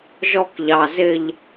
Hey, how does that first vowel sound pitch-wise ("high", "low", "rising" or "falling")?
high